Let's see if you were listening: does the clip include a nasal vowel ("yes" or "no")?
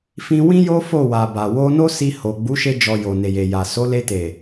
yes